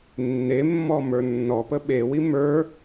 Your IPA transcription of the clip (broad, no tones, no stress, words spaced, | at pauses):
nːemːɔ mə˞nːɔpə ɓewi mə˞